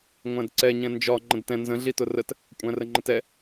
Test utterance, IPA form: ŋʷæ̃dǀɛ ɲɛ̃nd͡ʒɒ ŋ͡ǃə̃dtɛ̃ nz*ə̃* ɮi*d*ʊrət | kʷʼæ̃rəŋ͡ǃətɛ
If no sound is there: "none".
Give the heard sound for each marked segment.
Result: ə̃, t

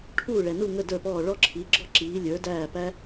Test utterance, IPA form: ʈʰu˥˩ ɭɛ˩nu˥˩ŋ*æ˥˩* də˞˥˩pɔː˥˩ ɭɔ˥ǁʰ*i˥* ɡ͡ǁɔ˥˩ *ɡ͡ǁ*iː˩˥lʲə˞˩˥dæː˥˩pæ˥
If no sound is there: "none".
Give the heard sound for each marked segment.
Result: ə˥˩, i˩˥, ǁ

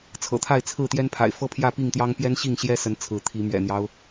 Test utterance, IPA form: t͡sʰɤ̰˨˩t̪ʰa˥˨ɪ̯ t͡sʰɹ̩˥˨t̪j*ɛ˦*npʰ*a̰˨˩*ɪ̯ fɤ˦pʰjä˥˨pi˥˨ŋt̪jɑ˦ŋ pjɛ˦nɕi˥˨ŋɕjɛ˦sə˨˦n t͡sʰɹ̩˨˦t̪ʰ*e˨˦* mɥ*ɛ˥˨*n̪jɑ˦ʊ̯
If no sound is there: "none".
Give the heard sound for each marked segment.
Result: ɛ˦, a̰˨˩, i˨˦, ɛ̰˨˩

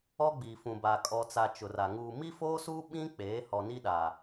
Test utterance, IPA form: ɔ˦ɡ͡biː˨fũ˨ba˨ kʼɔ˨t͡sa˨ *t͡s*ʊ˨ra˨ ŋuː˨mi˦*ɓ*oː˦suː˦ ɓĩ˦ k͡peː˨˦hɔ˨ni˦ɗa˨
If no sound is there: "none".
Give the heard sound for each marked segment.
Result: t͡ʃ, f

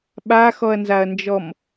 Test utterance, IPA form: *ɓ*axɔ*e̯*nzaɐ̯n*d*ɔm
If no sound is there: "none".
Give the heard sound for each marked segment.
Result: ɓ, ɐ̯, d͡ʒ

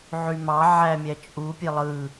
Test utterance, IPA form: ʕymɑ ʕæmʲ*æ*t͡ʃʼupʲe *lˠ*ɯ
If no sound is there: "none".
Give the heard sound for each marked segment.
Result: æ, lˠ

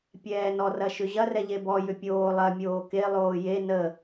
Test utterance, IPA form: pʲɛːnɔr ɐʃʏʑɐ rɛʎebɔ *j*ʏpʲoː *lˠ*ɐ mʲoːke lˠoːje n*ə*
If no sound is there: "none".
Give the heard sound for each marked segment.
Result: j, lˠ, ə

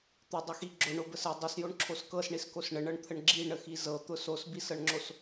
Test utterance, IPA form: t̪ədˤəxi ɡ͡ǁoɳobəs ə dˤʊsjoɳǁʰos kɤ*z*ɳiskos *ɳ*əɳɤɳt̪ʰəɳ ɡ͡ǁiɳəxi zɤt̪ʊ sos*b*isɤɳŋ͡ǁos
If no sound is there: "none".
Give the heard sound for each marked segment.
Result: s, ɳ, b

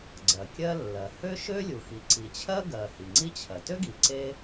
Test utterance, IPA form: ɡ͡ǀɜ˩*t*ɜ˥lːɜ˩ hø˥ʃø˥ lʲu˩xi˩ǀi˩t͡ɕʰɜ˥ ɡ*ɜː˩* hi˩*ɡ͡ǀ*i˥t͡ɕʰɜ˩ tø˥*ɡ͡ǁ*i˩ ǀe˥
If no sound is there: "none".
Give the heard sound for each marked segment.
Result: kʲ, ɜ˩, ŋ͡ǀ, ɡ

